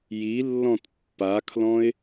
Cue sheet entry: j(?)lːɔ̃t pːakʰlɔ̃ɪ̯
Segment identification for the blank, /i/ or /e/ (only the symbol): i